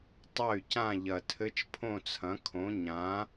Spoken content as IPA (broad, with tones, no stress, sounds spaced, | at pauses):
tˤ ɐ˥˨ y̯ c ã˥˨ ʎ ɐ˨˩ tʰ ɘ˧˥˧ t͡ʃ pʰ õ˥˨ t͡sʰ ɐ̃˩˥ kʰ õ˩˥ ɲ ã˩˥